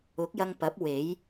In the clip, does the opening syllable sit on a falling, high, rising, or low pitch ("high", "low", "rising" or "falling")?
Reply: rising